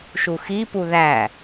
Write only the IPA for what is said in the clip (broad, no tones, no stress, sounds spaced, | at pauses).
ʃ u x i p u ð æ